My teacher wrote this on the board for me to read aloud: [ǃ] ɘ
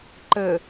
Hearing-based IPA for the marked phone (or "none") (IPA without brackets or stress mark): ǃ